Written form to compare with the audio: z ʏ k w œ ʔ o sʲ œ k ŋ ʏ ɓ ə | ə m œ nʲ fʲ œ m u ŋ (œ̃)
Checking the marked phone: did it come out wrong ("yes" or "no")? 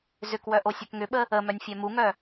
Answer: yes